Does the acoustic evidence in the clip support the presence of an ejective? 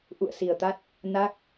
no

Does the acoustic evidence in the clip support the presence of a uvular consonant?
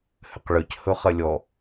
yes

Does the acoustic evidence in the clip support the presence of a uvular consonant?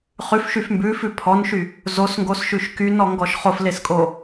yes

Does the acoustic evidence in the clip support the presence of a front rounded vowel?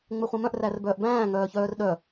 yes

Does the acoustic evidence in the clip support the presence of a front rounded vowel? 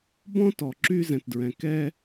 yes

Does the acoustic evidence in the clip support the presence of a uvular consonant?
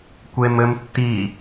no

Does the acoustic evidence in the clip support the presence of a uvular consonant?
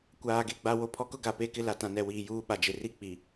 no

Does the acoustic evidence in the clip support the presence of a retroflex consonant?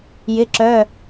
no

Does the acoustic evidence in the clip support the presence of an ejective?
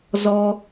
no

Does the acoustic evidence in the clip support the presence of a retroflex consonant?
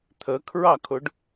yes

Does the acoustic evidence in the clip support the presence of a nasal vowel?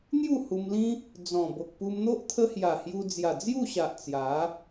yes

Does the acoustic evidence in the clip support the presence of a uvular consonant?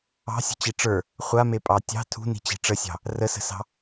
yes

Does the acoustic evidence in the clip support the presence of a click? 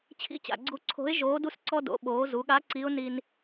yes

